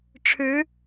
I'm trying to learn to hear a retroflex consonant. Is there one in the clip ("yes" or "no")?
yes